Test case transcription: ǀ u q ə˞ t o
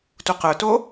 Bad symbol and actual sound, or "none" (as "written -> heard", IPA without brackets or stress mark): ǀ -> t